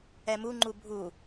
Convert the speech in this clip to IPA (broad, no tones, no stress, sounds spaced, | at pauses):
ɛ m u ŋ͡ǃ u bʱ u